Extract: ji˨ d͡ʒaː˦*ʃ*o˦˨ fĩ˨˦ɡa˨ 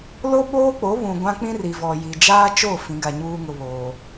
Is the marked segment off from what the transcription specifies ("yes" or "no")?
yes